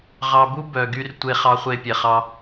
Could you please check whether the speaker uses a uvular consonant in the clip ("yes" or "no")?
yes